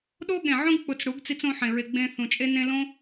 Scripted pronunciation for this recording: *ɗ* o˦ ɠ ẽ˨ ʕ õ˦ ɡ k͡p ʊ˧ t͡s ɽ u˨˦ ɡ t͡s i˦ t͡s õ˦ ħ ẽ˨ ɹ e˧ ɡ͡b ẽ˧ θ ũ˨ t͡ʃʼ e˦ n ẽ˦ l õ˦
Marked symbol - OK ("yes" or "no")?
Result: yes